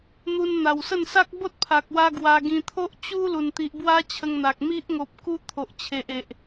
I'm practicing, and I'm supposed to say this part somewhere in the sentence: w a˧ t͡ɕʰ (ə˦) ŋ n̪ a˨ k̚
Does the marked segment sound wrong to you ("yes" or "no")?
yes